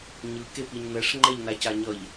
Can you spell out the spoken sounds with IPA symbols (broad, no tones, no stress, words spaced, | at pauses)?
ɲɯ kepiɲnɛʂ ŋ͡ǃɛʎnacaɲʌʎ